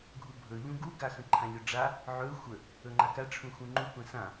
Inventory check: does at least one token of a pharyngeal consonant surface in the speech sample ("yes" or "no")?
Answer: yes